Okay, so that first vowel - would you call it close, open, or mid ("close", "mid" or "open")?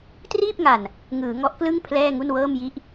close